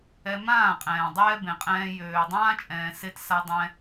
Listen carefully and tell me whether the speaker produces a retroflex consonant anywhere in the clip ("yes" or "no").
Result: no